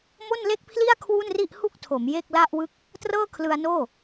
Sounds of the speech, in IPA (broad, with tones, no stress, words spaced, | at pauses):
mo˥˩nle˥˩k̚pʰli˥˩a̯ kʰwu˥˩nri˥˩ʔhu˥˩k̚tʰo˩˦m je˥˩k̚la˥˩ʔwɯ˥˩k̚ | trɤː˥˩kʰlɯ˧a̯noː˥˩